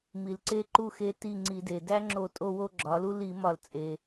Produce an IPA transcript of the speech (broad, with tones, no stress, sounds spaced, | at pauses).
m i˩ l ǀ e˦˨ ǃ u˦˨ x e˦ t i˦˨ ŋ͡ǀ i˧˩˧ d e˩ d æ˦ ŋ͡ǁ o˧˩˧ tʼ o˦˨ w o˦˨ ɡ͡ǁ ɒ˩˧ l u˦ l i˧˩˧ m ɒ˧˩˧ l t͡sʼ e˩